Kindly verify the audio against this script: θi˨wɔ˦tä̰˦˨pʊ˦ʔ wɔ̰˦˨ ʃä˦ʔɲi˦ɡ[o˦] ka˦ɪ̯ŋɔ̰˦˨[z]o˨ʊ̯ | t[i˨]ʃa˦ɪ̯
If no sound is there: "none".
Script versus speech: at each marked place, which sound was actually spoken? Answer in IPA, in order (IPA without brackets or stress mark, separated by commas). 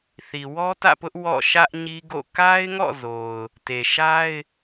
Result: o̰˦˨, z, e˨